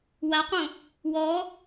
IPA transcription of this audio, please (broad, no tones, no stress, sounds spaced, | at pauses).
w a q õ | w ɔ